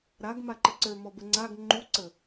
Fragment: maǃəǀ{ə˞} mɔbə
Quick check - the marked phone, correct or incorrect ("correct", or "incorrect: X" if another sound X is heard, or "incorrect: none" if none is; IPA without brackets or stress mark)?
correct